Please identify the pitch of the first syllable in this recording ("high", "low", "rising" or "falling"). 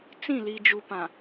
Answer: falling